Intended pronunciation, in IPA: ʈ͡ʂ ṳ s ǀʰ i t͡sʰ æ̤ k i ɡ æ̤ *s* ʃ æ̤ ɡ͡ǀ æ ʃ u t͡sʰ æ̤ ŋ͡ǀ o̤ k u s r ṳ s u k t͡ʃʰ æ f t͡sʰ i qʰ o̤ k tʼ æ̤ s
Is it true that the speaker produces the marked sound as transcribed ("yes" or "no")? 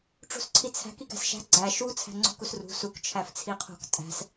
yes